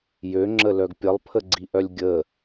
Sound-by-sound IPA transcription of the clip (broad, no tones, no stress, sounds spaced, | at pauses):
j ø ŋ͡ǁ ə l œ ɡ pʲ ə lˠ pʰ ə ɡ͡ǀ i ʔ œ lʲ ɡʲ ə